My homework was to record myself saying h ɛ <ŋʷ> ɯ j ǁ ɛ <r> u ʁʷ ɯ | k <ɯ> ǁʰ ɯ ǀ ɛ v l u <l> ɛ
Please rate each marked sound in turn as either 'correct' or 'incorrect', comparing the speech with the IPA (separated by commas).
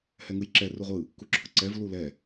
incorrect, correct, incorrect, correct